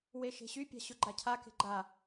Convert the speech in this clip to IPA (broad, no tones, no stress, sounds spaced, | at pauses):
w e ʃ e̤ ɕ y pʲ a̤ ɕ ʊ ɡ͡ǃ a cʰ a k e̤ ɡ͡ǃ a